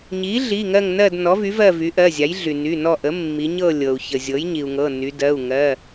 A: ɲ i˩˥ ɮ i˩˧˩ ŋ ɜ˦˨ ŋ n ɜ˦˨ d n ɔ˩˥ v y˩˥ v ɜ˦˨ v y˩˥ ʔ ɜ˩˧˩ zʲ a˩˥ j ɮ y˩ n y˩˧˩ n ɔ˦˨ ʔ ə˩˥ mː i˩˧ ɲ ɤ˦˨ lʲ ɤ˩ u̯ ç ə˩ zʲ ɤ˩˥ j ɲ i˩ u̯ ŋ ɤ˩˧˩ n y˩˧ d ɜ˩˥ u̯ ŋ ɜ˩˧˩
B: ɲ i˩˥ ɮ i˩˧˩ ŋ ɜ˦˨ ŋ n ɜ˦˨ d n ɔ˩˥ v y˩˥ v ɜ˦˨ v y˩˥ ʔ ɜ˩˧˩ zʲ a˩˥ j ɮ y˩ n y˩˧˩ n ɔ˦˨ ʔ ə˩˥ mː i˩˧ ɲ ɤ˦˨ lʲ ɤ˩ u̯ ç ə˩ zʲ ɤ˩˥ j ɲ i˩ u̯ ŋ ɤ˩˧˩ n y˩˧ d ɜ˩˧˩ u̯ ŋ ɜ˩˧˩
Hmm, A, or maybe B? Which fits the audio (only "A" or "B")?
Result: B